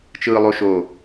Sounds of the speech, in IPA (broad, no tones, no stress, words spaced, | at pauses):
t͡ʃɯːlˠoʃo